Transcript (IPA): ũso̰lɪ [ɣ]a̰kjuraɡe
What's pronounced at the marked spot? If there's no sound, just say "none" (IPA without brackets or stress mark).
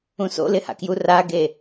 h